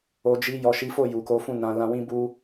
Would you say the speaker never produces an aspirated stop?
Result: yes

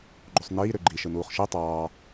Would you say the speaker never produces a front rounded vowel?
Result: no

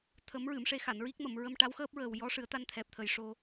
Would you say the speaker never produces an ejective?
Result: yes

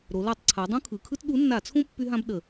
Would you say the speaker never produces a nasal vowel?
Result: no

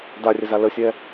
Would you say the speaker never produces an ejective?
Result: yes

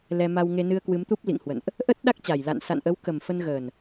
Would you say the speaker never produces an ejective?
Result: yes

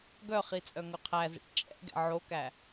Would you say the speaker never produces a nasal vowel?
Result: yes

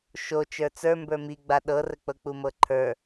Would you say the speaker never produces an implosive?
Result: no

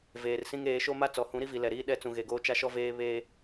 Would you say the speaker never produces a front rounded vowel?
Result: yes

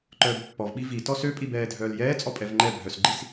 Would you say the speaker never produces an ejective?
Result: no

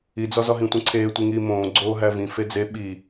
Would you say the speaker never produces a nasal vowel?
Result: no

